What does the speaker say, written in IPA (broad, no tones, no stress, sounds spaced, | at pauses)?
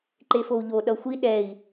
ǃ e f o u̯ ʎ o ɗ ʌ xʷ i ɗ ɛ i̯